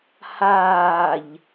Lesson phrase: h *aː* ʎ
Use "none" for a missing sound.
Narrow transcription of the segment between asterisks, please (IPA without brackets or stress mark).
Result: aː